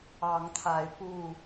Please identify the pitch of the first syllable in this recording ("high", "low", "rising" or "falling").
rising